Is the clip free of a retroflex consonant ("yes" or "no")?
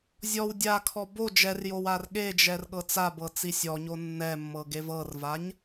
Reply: yes